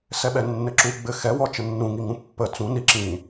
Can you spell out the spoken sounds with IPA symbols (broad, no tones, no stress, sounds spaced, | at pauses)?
s ɛ ɓ ɛ nː ɘ ǁ u ɡ͡b ɘ x ɛ w ɔ t͡ʃ ə nː ũ ŋ i ŋ ũ pː ə t͡s ũ n i ǁ ĩ